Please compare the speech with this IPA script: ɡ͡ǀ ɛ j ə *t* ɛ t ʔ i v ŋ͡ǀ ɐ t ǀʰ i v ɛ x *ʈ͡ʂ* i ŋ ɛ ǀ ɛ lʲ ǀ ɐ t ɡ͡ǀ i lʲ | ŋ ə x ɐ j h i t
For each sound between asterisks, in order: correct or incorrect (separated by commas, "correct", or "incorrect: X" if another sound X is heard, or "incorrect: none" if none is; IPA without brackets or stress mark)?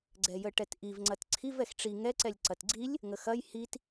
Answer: incorrect: ʈ, correct